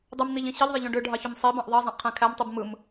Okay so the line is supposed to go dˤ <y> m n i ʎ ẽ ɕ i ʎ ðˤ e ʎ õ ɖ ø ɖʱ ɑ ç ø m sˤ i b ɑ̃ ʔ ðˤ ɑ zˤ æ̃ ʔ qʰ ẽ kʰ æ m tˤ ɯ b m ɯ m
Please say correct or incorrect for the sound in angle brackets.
correct